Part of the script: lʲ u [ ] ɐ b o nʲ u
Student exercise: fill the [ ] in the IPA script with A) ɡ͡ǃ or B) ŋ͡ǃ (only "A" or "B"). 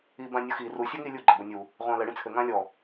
A